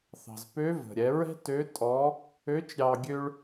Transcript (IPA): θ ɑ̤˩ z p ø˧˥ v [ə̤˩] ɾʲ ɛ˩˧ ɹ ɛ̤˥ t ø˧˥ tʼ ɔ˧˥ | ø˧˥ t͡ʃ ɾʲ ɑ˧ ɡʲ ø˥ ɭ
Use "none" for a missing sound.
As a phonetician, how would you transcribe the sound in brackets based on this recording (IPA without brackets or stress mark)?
ə̤˩